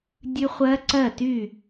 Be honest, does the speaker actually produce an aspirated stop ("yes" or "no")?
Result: no